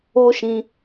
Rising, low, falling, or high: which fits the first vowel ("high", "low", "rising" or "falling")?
high